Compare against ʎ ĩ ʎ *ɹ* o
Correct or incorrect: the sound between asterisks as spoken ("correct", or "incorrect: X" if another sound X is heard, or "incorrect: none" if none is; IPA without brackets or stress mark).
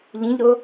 incorrect: ɾ